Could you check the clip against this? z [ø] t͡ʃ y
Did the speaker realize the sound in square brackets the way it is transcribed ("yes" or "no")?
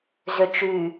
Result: yes